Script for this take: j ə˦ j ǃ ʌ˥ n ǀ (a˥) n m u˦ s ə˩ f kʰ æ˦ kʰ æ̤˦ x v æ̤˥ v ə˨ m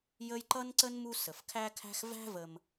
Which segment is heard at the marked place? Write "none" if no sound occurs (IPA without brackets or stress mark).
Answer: ə˥